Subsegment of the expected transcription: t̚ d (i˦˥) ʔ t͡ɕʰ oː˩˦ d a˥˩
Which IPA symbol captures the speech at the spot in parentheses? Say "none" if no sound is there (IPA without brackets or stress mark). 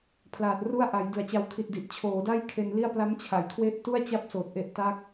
i˨˩